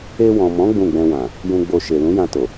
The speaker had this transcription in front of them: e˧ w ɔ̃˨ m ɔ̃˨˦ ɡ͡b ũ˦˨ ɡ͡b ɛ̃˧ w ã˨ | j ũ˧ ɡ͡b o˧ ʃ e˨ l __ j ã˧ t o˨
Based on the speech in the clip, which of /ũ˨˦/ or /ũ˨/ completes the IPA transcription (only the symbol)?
ũ˨˦